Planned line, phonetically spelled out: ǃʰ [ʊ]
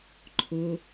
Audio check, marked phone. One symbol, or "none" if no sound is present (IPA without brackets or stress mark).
ʊ